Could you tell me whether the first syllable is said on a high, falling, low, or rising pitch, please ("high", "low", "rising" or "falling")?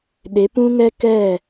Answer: rising